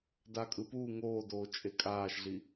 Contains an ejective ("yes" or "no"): yes